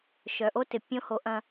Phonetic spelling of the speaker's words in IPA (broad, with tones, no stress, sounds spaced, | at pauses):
ʃ œ˨ ʔ o˦ t ɪ˨ pʲ õ˦ h o˨˦ ʔ ɐ̃˦